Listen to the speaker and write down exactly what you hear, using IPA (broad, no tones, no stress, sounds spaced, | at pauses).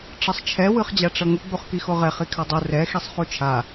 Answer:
ʈ͡ʂ ʌ sˤ t͡ʃʰ ɛ w ɯ χ d͡ʑ a ʈ͡ʂ ʌ ŋ u ɡ͡b u χ k i x o ʁ ɛ χ i kʰ a dˤ u r ɛ x i sˤ χ u t͡ʃʰ a